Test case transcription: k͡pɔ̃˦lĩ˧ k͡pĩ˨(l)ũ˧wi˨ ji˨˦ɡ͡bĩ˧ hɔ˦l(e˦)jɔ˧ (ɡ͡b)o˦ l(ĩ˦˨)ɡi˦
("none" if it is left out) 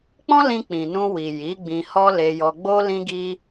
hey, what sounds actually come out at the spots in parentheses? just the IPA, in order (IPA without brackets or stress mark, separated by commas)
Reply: n, e˧, ɡ͡b, ĩ˦